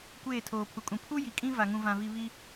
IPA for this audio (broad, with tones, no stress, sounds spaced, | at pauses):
kʷ eː˦˨ tʰ oː˨ pʰ u˨ kʼ ũ˨ pʰ u˦ j i˨ kʼ ĩ˦ v a˨ ŋ ũ˨ v ã˨ v i˨ β i˦